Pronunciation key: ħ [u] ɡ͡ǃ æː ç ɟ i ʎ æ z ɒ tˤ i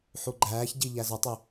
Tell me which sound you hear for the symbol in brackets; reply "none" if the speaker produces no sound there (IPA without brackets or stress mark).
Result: u